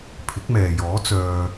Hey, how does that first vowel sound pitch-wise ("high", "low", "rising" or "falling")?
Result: rising